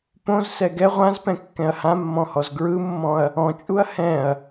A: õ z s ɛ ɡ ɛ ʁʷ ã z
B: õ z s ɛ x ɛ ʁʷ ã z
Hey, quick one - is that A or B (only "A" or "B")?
A